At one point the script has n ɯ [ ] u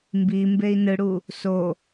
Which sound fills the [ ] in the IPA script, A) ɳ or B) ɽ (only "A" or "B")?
B